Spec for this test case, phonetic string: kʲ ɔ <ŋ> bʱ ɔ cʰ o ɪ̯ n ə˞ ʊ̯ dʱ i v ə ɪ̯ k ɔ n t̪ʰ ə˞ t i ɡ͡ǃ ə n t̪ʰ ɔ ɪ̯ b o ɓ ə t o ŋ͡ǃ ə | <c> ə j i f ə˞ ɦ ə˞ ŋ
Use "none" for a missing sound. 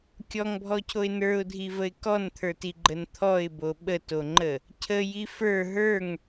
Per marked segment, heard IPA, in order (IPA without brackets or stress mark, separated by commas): ŋ, cʰ